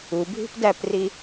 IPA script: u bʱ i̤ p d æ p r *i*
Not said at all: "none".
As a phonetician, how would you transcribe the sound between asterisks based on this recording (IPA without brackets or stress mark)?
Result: i